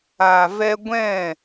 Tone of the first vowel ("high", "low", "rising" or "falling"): low